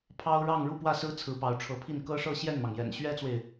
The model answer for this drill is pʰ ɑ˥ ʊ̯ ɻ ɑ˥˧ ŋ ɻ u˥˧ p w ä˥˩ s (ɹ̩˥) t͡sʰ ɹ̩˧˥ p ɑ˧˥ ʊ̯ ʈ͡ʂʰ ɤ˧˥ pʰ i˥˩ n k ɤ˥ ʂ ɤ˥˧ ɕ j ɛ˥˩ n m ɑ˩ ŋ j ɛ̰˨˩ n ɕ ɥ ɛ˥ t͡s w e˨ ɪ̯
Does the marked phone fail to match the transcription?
no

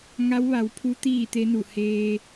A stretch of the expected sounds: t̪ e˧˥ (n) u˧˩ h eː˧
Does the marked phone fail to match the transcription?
no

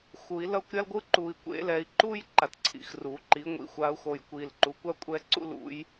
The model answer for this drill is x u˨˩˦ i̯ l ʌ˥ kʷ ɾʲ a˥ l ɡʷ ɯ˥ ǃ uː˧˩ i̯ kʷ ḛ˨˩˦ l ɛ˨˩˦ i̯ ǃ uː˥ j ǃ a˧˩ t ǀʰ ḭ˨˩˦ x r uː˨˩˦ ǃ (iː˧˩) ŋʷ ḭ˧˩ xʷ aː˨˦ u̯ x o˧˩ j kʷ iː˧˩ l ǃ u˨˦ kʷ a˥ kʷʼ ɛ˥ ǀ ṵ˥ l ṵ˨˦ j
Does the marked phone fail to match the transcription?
yes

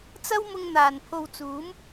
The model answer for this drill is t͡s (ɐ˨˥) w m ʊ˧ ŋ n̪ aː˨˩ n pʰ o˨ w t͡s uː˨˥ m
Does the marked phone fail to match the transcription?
yes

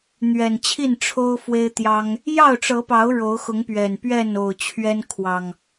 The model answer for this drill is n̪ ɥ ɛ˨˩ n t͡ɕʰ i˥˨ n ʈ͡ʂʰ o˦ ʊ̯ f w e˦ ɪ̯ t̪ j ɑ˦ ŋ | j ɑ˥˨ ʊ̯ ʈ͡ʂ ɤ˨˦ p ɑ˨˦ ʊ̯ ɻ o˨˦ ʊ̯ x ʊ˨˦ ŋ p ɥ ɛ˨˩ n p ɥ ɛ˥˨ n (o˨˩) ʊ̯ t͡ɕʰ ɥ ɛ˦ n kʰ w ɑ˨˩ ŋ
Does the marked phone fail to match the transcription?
no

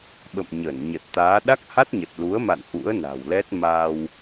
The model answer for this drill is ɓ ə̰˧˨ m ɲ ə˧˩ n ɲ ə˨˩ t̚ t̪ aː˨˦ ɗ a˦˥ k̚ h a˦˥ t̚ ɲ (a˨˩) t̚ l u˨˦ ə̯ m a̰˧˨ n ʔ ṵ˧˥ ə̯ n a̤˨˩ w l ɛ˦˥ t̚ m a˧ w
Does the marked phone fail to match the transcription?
yes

